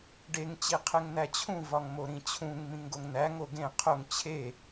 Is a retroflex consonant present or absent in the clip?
present